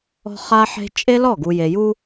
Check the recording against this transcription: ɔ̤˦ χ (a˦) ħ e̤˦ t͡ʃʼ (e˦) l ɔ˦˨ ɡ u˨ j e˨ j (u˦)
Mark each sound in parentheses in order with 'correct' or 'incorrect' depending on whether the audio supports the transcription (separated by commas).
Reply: correct, correct, correct